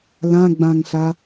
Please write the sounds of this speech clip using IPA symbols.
l ã ɡ͡b ã ŋ ɬ a

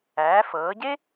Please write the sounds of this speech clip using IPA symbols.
æː˩˧ f ɤː˩˧ ɟ e˥

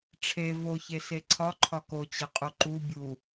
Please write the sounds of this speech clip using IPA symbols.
ʈ͡ʂʰ e v o ç e s e ǀʰ ɒ ǃʰ ɒ k o t͡ɕ e qʼ u ǃ u bʲ u

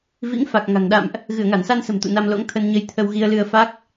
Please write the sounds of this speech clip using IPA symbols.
v ḭ˧˥ ŋ f a˨˩ k̚ ŋ a̤˨˩ ŋ ɗ a̰˧˨ m ʔ | ɣ ɨ˧˩ ə̯ ŋ a˧˩ n s a˧ n s ə̤˨˩ m t̪ ṵ˧˨ n a˧ m l o̰˧˥ ŋ t̪ʰ ə˧ n ɲ ə˧ j t̪ʰ ə˧ w ɣ i˧ ə̯ l ɨ˧ ə̯ f a˦˥ k̚

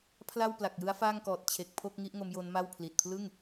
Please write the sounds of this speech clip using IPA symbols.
pʰ l a˥˩ w p l a˨˩ k̚ j ɯ˦˥ a̯ f aː˥˩ ŋ k ɔː˨˩ t̚ t͡ɕʰ e˨˩ k̚ pʰ o˥˩ k̚ ŋ i˦˥ ʔ ŋ o˦˥ m j o˦˥ n m a˥˩ w pʰ l i˨˩ t̚ pʰ l ɯ˥˩ ŋ

